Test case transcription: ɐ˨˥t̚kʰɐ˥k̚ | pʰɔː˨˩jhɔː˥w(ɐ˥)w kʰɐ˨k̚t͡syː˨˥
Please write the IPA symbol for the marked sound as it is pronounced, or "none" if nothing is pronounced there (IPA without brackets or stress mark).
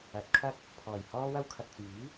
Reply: ɐ˥